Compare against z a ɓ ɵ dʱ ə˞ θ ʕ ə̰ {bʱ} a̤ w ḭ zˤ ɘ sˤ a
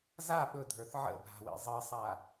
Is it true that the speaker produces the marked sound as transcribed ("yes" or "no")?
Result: yes